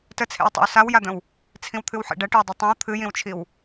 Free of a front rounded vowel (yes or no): yes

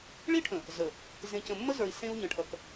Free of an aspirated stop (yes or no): no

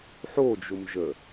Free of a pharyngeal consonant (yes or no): no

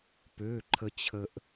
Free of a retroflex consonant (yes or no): yes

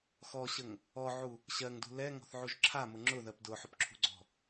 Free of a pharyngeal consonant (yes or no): no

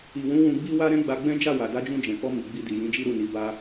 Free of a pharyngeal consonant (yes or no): yes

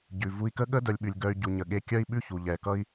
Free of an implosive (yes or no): no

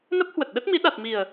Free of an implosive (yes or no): no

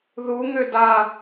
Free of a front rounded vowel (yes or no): no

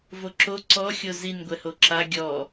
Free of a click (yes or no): no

